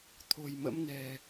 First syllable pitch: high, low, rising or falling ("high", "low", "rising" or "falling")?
low